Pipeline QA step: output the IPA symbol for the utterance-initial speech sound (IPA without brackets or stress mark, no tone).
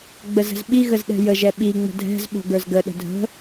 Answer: ɡ͡b